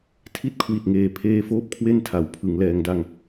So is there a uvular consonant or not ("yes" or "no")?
no